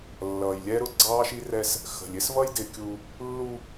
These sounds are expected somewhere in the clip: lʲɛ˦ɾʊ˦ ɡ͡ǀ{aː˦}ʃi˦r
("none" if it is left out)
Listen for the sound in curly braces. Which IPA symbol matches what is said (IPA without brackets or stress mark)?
ɑː˦